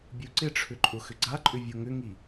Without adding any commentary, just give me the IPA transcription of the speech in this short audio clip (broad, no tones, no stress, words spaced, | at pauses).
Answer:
bʲuǀɪʈ͡ʂʰʏ ǃʼʊxʏɡ͡ǀaǃʼʏ vʲoŋʏŋi